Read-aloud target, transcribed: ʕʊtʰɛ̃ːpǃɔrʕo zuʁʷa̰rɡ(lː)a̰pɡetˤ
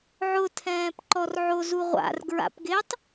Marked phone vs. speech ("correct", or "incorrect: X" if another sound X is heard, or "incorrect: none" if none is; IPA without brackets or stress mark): incorrect: ɹ